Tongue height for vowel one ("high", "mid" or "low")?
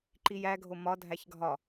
high